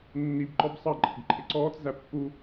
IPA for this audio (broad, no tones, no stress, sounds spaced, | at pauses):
nː i b ǃ ɔ b sˤ ɑ ǃʼ ɪ ɡ ǃʰ ɪ ǀ ɔː t͡s z æ pː u